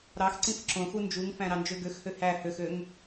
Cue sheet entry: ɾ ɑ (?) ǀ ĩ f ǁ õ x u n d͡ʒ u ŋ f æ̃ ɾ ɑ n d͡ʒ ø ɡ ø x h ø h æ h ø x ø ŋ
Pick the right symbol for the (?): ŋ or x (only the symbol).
x